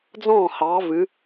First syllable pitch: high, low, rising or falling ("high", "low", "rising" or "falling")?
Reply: falling